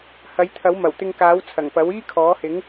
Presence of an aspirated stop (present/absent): present